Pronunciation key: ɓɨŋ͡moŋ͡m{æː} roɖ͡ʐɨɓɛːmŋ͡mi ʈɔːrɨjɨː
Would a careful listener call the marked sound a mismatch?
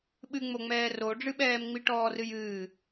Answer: yes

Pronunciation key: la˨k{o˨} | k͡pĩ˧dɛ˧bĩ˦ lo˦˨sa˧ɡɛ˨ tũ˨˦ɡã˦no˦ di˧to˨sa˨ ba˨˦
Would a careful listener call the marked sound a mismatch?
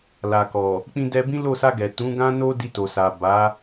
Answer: yes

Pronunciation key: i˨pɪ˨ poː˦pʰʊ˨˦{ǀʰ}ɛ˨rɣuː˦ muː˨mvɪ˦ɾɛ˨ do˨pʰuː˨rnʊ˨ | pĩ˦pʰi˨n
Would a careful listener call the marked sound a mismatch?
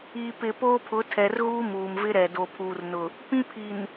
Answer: yes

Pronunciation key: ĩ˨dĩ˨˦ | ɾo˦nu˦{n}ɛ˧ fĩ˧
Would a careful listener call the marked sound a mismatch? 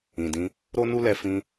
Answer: yes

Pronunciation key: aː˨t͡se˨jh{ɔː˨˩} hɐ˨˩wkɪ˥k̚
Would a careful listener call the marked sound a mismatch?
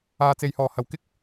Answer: no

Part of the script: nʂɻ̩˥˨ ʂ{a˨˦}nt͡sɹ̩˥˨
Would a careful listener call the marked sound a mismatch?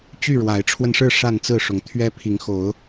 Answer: yes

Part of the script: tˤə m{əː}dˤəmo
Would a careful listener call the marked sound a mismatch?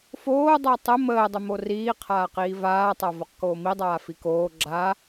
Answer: no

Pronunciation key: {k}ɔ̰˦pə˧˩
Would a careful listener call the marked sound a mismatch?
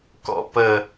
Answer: no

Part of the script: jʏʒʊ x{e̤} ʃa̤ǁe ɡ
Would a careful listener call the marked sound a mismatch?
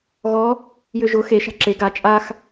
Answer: yes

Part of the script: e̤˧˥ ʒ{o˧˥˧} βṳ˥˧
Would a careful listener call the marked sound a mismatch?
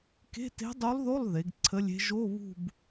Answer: no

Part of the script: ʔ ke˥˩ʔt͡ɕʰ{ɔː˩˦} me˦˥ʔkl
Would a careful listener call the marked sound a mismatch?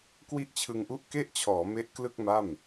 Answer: no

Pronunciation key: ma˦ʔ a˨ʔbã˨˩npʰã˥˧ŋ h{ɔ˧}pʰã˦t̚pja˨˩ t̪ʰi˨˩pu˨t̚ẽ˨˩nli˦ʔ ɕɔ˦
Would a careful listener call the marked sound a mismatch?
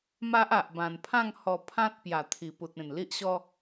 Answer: no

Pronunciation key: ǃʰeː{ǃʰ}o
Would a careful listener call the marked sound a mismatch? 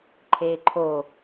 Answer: no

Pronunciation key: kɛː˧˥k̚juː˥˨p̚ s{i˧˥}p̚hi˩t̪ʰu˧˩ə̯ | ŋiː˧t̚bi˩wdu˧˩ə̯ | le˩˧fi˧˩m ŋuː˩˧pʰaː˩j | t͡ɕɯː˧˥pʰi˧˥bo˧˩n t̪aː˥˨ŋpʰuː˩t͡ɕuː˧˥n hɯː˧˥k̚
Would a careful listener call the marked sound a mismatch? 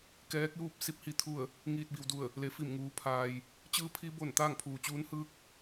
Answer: no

